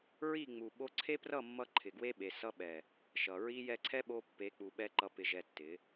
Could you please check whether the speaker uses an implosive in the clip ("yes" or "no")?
yes